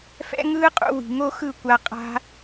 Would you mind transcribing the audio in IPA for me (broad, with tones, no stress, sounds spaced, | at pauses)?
f ɛ̰˦ ŋ ɯː˦ qʼ ṵ˧ w i̤˨ ŋ o˦ x ɯ˦˨ kʷ a˧ qʼ a̤˦